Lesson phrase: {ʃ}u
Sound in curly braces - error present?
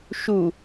no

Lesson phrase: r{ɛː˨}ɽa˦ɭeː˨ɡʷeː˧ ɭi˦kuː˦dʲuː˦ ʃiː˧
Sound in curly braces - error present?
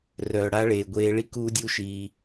yes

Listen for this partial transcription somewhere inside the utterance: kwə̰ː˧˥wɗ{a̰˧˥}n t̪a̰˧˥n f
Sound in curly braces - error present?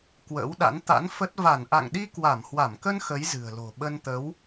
no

